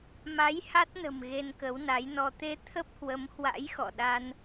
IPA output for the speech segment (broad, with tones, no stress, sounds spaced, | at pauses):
m a˨˦ j h a˦˥ t̚ n ə̤˨˩ m ɣ e˧ n k ə˨˦ w n a˨˦ j n ɔ˧ t̪ e˧ t̪ʰ ə˦˥ p̚ h w ə˨˦ m h w a̰˧˥ j x ɔ̰˧˨ ɗ a˧ n